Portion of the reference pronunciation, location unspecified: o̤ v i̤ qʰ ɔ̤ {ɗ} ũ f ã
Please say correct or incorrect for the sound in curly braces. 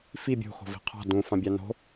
incorrect